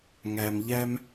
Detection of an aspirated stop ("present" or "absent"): absent